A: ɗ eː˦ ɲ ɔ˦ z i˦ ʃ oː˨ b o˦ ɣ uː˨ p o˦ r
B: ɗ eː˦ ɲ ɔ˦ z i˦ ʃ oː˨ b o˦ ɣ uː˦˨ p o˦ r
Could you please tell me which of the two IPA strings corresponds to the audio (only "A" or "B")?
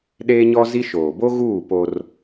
B